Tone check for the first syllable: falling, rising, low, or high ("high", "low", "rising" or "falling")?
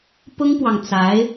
high